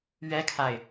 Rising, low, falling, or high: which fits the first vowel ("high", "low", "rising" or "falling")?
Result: high